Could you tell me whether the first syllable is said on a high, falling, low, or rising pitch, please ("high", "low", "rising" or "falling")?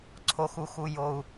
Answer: low